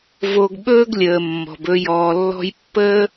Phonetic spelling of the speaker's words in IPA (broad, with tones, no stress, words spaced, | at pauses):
vo˨ɡ ɓɵː˦ɡlʲəː˨mːɔ̤˨bɵ˧ jɔː˨lːɔ̤˧jpːəː˦